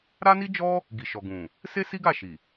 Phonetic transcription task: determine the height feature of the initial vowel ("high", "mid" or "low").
low